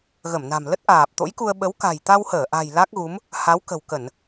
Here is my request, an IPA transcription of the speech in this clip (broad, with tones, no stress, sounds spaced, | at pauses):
ɣ ə˧˩ m n a̤˨˩ m l ə˦˥ t̚ ʔ aː˨˩ p̚ t̪ o̰˧˥ j k u˧ ə̯ ɓ ə˨˦ w k a̤˨˩ j t̪ a˧ w h əː˧˩ ʔ a̤˨˩ j l a˦˥ k̚ ɣ u˨˦ m | h a˨˦ w k ə̤˨˩ w k ə˧˩˨ n